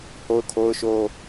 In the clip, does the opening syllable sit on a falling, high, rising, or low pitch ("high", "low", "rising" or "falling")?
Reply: high